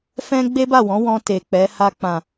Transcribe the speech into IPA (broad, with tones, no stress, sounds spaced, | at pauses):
f ɛ̃˦ ɡ͡b e˦ b a˦˨ w ɔ̃˨˦ w ɔ̃˧ t e˨ k͡p ɛ˨˦ h a˧ k͡p ã˨